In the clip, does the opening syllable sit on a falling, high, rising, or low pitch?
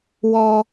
high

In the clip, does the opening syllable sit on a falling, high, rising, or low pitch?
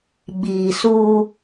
low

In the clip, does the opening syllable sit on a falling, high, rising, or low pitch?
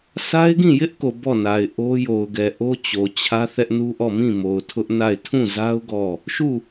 high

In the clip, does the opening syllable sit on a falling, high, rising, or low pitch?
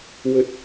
high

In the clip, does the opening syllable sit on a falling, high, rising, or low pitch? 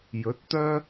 rising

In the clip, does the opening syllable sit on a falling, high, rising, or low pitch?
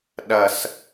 low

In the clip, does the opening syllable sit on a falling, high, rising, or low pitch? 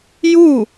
falling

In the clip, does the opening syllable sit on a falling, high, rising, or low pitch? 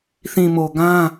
low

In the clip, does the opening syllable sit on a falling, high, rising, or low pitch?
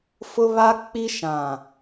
high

